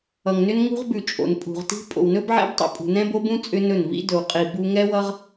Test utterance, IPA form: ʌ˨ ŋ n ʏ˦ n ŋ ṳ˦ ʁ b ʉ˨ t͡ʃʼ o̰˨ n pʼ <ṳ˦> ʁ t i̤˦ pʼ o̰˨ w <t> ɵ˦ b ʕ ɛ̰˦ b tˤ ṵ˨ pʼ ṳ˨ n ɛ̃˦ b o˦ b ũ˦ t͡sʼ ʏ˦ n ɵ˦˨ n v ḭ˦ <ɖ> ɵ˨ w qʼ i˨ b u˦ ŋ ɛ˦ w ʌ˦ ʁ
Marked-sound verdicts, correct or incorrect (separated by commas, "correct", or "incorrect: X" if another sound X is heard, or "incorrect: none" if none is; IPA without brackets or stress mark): incorrect: ṳ˨, incorrect: n, incorrect: d